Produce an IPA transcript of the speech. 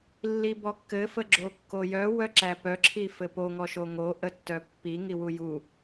lːibɔkːɘ fəɡ͡ǁokːojœ wœǁæpœ ǁʰifɘpo ŋɔʃoŋo ʔətːœpːi ŋiwuju

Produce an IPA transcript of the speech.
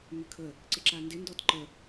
mʏkʰə | ǀɪǁandɪ ndɔtǃə

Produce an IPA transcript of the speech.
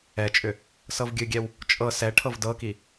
ɛt͡ʃʼʏ | sɤvɡʲɨɡʲɛw | t͡ʃʼɤ sɛ ʈʰɤvdɤki

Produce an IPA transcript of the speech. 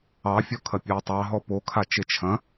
ɑfʲɔ kʰɐpʲɑtˤɑ ɦɔpokʰat͡ʃe t͡ʃʰɐ̃

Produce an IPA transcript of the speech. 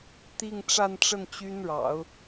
t̪i˥˧ŋʈ͡ʂa˥˧nʈ͡ʂə˥˩n t͡ɕy˥nɻɑ̰˨˩˦ʊ̯

